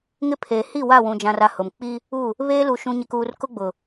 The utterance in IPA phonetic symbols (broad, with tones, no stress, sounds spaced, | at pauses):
ŋ ɪ˦ pʰ eː˨ h i˦˨ w a˦˨ w ũ˨ d͡ʒ ã˨ r a˨ h ʊ˨ m k͡p i˦ | u˦˨ | β eː˦ l u˨ ʃ ũ˨ ɲ ɪ˨ k uː˨ r k ʊ˦ ɡ͡b ʊ˨